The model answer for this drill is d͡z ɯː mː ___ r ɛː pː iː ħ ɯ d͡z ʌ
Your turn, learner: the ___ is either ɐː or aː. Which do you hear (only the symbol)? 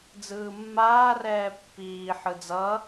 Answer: aː